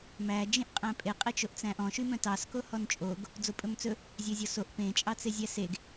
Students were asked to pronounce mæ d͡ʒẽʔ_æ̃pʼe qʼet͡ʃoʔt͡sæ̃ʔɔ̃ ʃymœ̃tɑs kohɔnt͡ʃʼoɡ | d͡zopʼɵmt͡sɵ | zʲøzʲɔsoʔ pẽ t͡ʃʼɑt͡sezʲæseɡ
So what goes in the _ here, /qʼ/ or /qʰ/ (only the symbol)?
qʼ